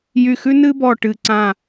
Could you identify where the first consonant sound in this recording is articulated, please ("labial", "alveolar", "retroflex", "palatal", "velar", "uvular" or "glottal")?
palatal